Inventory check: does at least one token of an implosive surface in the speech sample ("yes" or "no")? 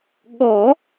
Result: yes